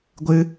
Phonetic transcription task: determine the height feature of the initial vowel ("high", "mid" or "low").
high